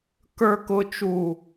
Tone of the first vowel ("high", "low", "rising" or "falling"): low